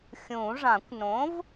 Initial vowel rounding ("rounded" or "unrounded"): rounded